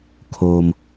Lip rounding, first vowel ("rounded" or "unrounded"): rounded